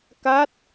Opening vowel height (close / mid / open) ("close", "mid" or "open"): open